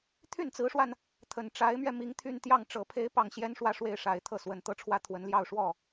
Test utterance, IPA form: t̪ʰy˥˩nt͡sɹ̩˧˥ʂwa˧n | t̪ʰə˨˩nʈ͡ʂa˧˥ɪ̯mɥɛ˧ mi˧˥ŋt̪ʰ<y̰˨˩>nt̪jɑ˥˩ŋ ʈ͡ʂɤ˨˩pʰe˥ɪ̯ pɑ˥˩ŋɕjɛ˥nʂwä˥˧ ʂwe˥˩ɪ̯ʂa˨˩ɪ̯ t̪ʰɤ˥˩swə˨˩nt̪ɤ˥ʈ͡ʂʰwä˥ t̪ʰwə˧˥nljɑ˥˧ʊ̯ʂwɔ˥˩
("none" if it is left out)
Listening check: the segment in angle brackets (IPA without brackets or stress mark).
y˥˧